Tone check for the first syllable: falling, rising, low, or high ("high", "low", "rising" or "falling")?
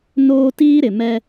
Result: high